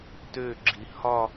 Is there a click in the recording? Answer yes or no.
yes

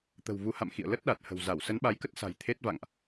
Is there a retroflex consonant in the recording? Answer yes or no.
no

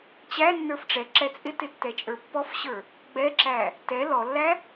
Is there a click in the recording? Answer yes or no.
yes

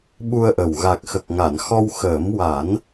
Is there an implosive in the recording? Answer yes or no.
yes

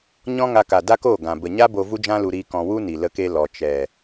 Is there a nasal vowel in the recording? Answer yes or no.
yes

